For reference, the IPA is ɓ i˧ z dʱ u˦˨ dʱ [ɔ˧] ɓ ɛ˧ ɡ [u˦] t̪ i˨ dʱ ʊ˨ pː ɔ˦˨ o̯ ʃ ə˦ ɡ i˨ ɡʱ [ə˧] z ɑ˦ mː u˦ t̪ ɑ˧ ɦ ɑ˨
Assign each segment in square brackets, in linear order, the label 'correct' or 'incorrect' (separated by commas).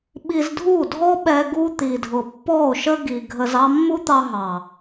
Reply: incorrect, correct, correct